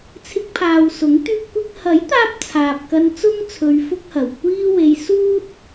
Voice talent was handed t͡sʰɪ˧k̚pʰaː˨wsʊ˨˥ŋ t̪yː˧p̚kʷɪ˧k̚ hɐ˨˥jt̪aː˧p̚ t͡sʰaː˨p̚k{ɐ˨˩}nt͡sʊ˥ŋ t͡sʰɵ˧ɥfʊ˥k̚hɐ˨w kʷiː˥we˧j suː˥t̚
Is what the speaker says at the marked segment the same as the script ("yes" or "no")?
no